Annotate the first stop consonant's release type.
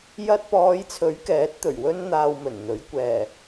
plain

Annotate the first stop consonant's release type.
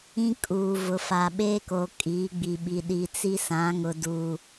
ejective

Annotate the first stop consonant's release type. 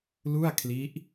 aspirated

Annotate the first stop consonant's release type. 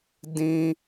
plain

